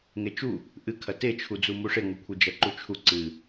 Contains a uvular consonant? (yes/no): no